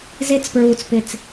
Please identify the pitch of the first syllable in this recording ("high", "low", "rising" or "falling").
high